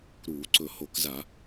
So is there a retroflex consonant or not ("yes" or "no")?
no